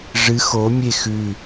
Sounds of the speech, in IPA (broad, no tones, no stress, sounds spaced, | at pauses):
ʐ ɨ x o mʲ e x ʉ